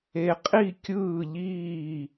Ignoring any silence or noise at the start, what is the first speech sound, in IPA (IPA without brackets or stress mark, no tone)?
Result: e